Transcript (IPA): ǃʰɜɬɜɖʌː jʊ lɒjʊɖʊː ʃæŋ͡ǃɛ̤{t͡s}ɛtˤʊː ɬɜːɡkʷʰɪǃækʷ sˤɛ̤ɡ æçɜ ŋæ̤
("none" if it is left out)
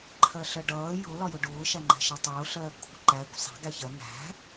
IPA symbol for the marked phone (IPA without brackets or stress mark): ʃ